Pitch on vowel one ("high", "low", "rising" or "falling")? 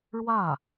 falling